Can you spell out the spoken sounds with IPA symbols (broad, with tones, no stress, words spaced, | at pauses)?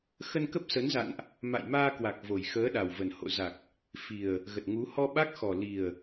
xə˧nkə˦˥p̚sə˨˦nza̰˧˨nʔ | ma̰˧˨jmaː˧kwa˨˩k̚ vo˨˩jxəː˨˦ɗa˨˩w və˨˩nho̰˧˨za˨˩k̚ | fi˨˩ə̯ | ɣə˨˩t̚ŋu˨˦ hɔ˧ɓa˦˥k̚xɔ˨˩ li˨˩ə̯